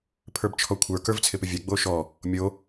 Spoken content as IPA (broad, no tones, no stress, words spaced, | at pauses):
pʰə˞bt͡ʃʰɔkʷʰə˞ kə˞vt͡sʰɪpɪvʲɛ ɡ͡boʃɔ | mʲo